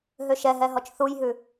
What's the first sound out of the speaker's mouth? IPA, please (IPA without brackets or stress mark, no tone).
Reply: ɦ